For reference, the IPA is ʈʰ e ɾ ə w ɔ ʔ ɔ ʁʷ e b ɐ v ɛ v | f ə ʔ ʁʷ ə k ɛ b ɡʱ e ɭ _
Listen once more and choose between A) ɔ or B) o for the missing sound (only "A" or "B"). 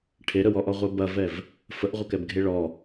A